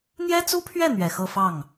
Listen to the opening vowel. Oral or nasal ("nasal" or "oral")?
oral